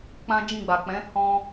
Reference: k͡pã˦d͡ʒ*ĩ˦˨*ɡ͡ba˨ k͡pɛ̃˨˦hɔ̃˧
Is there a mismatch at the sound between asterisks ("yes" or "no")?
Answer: no